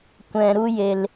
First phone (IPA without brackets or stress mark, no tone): kʷ